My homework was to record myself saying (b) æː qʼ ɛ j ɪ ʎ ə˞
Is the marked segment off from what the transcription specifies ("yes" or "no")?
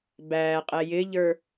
no